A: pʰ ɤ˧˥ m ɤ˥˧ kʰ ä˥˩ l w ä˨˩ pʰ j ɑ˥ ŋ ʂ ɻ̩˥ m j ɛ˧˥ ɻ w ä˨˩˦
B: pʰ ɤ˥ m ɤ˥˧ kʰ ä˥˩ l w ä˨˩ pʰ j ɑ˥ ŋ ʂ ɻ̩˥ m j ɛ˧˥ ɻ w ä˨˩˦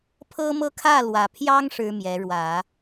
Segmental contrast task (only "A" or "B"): B